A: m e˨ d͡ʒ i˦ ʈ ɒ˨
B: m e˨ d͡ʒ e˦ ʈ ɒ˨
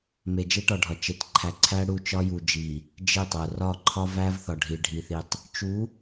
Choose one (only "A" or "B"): B